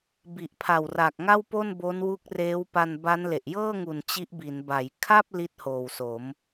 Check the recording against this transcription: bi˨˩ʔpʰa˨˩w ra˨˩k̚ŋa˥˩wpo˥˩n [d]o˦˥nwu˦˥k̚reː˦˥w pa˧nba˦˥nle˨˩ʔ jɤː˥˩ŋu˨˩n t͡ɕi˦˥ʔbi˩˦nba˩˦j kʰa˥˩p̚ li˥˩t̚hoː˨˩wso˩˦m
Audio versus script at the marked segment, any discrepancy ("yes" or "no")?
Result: yes